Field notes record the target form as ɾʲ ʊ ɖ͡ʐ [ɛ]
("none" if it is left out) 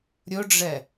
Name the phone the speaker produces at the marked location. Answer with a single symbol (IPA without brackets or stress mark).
ɛ